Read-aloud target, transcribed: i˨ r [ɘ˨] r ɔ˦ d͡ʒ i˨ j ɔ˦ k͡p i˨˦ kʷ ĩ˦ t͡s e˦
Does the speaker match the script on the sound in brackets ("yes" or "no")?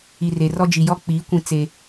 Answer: no